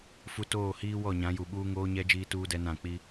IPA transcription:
fu˨toː˦˨hiː˦ wɔ˦˨ɲã˨˦ju˨ɓuː˦ ŋoː˦ɲɛ˦ d͡ʒiː˦tuː˦dɛ˦ nã˦˨k͡pi˦

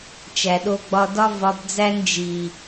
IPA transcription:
t͡ʃæ˨ɗo˧ɡ͡bɒ˧ dɒ˧vɒ˨b d͡zæ˦n d͡ʒi˨

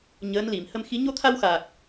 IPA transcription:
ɲəː˧˥nli˨˩˨m hə˧mxi˧˥ ɲo˧t̪ʰa˧wxaː˨˩k̚

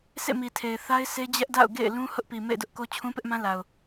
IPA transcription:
sḛ˦˨mi˨tʰe˨ɪ̯ θa˦ɪ̯ se˦d͡ʑɛ˦ʔ da̰˦˨ʊ̯ɡḛ˦˨ɪ̯ lũ˦ hʊ˦ʔpi˨ mḛ˦˨ɪ̯dʊ˦ʔko˦ t͡ɕʰũ˦pɪ˦ʔmã˦ la˨ʊ̯

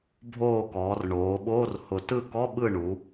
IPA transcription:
bʱoː˦˨kɔː˩˧rɳoː˩˧ɓoː˧˥˧r hʊ˦˨ tɯ˦˨kɔ˧˥˧ɓɯ˦˨ ɳu˩˧

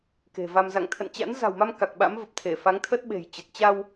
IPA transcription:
ke̤˨˩va˧m za̰˧˨ŋt̪ʰə̰˧˨nt͡ɕa̰˧˥n za̤˨˩wma˧m ka˨˩k̚ɓa̰˧˥mvə˨˩p̚t̪ʰe˧˩ fa˨˦ŋt̪ʰə˦˥t̚ɓe̤˨˩j t͡ɕə˨˩t̚ t͡ɕa˧w

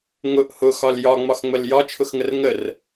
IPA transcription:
ŋʊʔ hʊxɒl jɒŋ͡mɒxŋ͡məl jɒt͡ʃʰʊxŋər ŋər

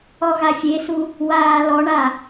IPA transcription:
ɔɣafʲesu | waːlɔɳa

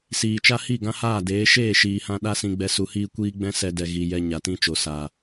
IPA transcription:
siː˨t͡ʃa˦ hi˦˨ɡã˦haː˦˨deː˨˦ ʃeː˦˨ʃiː˨hã˧ ɗa˦sĩ˧ɡ͡bɛ˧ su˨hiː˦kʷiː˦ ɡ͡bɛ̃˦ sɛ˦dɛ˧ ɣi˨ jɛ˨ ɲa˨tĩ˦t͡ʃo˨ sa˨

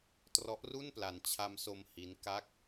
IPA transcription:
trɔ˦˥ʔru˥˩npla˧n t͡ɕʰa˧mso˧m hi˦˥nka˥˩k̚

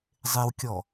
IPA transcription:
zˤewkʲɔ

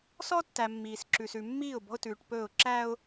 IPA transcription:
sɔ˦tːæ˨ mːiː˨sǁʉ˨sʉ˨ mːiː˦˨ʊ̯ bɔ̤˦ʊ̯tʉː˨ʈpɵː˦˨ʊ̯ ǁæ˦ʊ̯

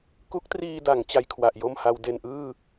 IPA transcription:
ku˦˥k̚triː˧da˩˦ŋ t͡ɕa˧jkʰwa˨˩ʔjo˥˩mha˧w de˨˩nʔɯː˥˩

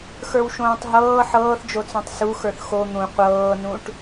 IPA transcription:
xə˞wʃõːtˤɦɤː ħɤːθd͡ʒot͡sõtˤ su xə˞θxo n̪ũ qʷɤːnũʈ

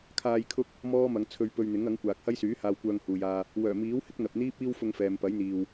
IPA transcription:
kʰaː˧jkʰʊ˥k̚ | mɔː˥mɐ˨˧ŋt͡sʰɵ˧ɥ pɵ˧ɥ n̪ɪ˨˥ŋɐ˨˥ŋ kʷaː˨k̚hɐ˥jsyː˨˥ haː˧wkʷœː˧ŋhuː˨jaː˧ | wœː˨˩miː˨˥whɪ˥k̚ n̪ɐ˨p̚n̪iː˥p̚ iː˥w fʊ˧ŋfɛː˨mpɐ˨˥jn̪iː˨w

